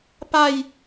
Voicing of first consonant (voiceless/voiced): voiceless